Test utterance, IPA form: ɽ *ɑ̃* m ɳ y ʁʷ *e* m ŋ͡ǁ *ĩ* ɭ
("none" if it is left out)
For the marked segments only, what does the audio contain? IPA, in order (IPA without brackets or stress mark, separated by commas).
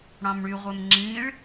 ɑ̃, e, ĩ